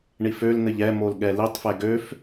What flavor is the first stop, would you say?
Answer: implosive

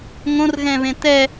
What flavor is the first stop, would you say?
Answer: plain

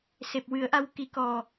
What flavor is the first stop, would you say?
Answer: plain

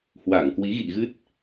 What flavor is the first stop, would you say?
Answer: plain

